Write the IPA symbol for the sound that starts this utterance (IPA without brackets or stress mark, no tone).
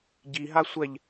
ɟ